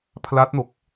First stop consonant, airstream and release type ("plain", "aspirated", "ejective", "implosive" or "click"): aspirated